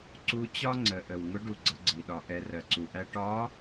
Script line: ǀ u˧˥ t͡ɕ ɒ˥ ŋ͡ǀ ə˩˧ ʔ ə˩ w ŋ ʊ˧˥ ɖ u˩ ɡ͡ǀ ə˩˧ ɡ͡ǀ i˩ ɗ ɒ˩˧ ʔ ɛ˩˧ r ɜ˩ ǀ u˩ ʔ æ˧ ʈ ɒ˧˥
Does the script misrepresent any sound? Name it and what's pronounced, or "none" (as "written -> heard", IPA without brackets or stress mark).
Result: none